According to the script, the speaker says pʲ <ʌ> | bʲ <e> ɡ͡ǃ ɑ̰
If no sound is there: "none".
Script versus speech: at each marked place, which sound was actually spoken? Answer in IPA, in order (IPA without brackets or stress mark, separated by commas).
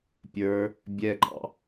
ə˞, ɛ